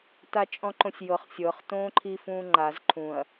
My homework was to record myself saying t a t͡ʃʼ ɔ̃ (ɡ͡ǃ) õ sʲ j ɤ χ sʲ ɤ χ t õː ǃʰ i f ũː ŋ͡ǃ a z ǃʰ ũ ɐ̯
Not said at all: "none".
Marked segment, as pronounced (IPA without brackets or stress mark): ǃ